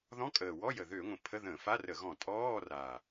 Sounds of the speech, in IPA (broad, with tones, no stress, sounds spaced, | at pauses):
ð ɔ̃˧˥˧ kʼ əː˨˩ w ɔ˧˥˧ j ə˨˩ ð ø˧˩˧ ŋʷ ə̃˨˩ pʰ ə˧˥˧ ð ə̃ː˧˩˧ f a˧˥˧ r ə˧˩˧ ɣ ɔ̃˧˩˧ tʼ ɔː˧˥˧ r a˨˩